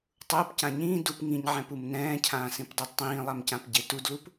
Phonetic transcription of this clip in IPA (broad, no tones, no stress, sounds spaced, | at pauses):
tˤ ʊː p c ã ɲ ĩː d u p ŋ ĩ ɲ ʕ ɛ̃ p u m n ɛ̃ː cʰ ãː s ĩ p dˤ a d tˤ ĩː lˠ a m c ã p ɟ e t u d l u p